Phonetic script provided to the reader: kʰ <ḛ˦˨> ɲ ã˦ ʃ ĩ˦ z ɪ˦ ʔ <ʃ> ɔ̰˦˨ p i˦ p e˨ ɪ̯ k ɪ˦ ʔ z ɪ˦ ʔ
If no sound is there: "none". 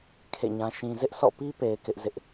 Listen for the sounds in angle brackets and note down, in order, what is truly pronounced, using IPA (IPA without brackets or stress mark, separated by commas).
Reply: ḛ˦˨, s